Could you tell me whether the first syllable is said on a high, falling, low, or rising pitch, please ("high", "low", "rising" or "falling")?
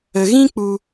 low